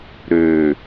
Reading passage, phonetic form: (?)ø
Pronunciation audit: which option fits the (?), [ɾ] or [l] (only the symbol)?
ɾ